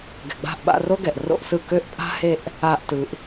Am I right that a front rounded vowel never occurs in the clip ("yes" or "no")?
no